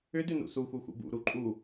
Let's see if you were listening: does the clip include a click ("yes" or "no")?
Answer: yes